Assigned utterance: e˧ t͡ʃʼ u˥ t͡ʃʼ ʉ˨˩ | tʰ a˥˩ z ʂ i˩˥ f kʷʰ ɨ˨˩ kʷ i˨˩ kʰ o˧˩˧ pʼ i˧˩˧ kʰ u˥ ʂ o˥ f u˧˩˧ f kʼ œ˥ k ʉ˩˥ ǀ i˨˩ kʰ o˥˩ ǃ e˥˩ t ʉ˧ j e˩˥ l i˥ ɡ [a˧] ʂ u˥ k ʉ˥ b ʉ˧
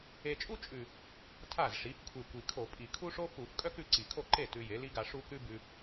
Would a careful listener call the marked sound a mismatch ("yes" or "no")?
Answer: no